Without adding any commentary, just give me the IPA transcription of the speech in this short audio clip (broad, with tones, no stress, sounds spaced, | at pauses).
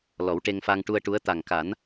l ɔ˨˩˦ w ʈ e˧ ŋ f a˧ ŋ ʈ u˧ ə̯ ʈ u˧˥ ə̯ t̪ a˨˩ ŋ k a˨˩˦ n